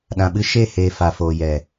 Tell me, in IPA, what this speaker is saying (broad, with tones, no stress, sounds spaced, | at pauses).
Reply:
ɗ ã˨ ɓ ɨ˧ ʃ e˦˨ h eː˨ f a˨ f oː˨ j ɛ˨